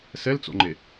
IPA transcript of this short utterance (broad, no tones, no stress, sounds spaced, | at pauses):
s ɛ l t͡s o̰ ŋ͡ǃ e